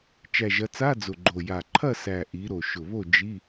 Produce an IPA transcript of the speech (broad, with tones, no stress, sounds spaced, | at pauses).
t͡ʃ æ˨˩ ʒ ɐ˩˧ t͡s a˧˥˧ d͡z ʊ˨˩ ɡ͡ǃ o˨˩ j a˨˩ ǃʰ ɐ˥˨ s æ˨˩ ʔ i˩˧ ɾ o˨˩ ʃ ʊ˨˩ β o˥˨ d͡ʒ i˧˥˧